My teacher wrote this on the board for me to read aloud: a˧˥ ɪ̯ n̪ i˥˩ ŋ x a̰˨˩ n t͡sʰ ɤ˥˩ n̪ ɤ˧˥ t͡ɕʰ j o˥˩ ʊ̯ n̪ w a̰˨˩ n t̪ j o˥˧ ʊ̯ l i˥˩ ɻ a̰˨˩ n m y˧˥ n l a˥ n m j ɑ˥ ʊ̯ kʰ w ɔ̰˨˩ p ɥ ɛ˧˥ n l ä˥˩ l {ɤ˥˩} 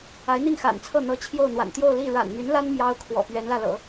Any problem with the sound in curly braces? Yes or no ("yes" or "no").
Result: yes